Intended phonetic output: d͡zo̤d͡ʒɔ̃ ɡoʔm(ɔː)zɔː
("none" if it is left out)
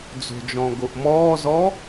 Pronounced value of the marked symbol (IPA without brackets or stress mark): ɔː